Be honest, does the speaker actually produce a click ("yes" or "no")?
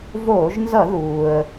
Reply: no